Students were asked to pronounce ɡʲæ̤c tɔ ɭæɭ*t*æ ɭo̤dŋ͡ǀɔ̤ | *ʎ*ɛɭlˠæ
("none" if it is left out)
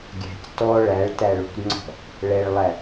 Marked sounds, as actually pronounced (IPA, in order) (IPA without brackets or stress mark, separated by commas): t, ɭ